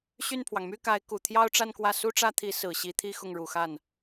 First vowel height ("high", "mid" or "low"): high